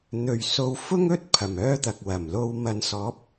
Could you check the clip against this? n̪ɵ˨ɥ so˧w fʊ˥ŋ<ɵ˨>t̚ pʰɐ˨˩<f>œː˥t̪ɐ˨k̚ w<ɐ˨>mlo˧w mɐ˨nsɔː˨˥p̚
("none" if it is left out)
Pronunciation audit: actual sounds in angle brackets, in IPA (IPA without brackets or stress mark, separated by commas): ɵ˥, m, ɐ˨˩